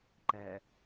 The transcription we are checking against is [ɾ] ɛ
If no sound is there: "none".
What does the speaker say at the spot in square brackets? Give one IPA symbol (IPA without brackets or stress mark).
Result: ǃ